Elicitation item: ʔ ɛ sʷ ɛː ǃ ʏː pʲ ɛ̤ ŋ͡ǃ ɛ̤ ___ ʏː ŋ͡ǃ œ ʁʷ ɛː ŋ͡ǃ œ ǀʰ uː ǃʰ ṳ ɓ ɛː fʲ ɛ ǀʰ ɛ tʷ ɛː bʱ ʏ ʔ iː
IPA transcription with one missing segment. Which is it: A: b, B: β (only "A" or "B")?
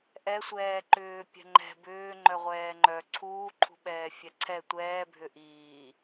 A